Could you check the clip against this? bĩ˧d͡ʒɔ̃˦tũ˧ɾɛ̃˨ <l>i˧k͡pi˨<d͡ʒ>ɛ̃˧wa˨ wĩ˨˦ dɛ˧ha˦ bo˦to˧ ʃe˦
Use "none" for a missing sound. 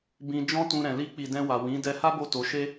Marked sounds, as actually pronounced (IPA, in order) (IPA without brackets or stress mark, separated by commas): l, d